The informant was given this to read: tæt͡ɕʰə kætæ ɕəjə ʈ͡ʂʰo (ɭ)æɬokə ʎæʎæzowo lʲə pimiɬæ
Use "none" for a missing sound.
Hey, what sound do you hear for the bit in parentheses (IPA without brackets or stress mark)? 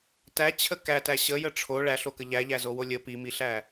ɭ